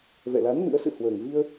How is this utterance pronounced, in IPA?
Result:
vɛ̰˧˨la˨˦n mɨ̰˧˥ə̯sɨ̰˧˨ hwəː˨˩ŋvi˧ə̯

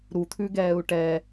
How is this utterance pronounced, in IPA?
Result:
ɾu t̪ʰʉɡɛːu̯ʈɛː

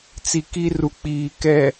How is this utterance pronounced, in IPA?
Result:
t͡si˨ki˦ru˨k͡piː˨ kɛ˨

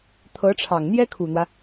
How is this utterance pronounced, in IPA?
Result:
t̪ʰɤ˧˥ʈ͡ʂʰɑ˨˩ŋ n̪jɛ˥kʰu˨˩n̪wä˦

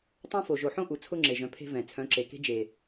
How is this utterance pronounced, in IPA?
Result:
tˤõ˦fo˨ ʒo˨ħõ˦ ʔu˨t͡sʰʊ˦ŋ͡ǁe˨ʒœ̃˨˦ pʰe̤˦vɛ̃˨ t͡sʰœ̃˨˦ǁe˨ke̤˦ d͡ʒe˨

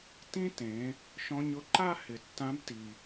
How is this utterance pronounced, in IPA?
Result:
tĩ˥tẽ˩˧ | ʃɔ̃˧ɲʊ˧ǃa˥ hɪ˩tːã˧˥bti˩

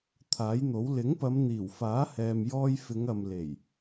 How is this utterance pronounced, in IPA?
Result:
t̪ʰaː˨˥jn̪o˨˥w lɪ˨˥ŋpɐ˨˧m n̪iː˨˩wfaː˨˥ hɛː˧mjɔː˥j fɪ˨˧ŋɐ˨m le˨˩j

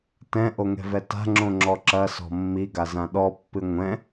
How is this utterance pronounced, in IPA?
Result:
tɛ̃ʔoŋɛ̤vɛ ta̤ŋ͡ǁõŋ͡ǁɔ ǁɐsɔ̤ mːiɡazã ɗɔpːɨ ŋʷɛ̃

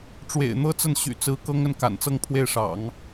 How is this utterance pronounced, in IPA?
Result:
ʈ͡ʂwḛ˨˩ɪ̯n̪ɤ˥ t͡sə˥˩nɕy̰˨˩t͡sɹ̩˧˥ kɤ˥ŋ ə˥˩n ka̰˨˩nt͡sɤ˥ŋpʰwe˥˩ɪ̯ʂɑ̰˨˩˦ŋ

